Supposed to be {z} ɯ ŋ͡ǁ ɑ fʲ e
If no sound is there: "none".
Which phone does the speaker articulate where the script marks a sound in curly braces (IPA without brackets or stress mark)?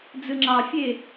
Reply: d͡z